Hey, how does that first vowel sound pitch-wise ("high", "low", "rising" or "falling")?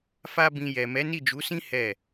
high